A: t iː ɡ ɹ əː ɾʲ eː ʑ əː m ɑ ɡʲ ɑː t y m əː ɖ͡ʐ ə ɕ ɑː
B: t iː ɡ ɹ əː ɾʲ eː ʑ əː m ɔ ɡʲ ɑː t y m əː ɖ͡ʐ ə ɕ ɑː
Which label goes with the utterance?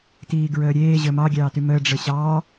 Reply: A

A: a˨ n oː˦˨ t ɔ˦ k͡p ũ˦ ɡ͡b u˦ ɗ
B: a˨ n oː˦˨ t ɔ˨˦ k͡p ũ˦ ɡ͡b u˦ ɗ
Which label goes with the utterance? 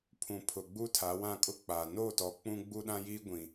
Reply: B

